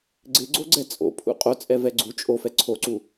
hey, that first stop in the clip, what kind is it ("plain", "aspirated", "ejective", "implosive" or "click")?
click